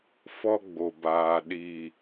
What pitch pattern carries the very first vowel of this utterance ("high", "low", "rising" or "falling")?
high